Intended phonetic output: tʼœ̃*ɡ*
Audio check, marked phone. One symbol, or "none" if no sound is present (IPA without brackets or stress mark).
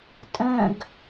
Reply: ɡ